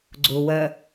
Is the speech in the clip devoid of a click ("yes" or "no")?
no